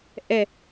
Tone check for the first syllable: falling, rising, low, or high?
falling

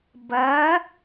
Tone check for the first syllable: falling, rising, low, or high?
rising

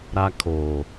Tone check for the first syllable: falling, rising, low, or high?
high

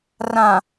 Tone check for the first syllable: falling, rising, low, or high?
low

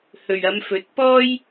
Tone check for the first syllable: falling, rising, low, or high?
low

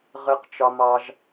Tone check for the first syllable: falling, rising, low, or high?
high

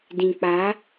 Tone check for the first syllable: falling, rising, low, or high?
low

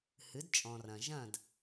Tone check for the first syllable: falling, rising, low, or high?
rising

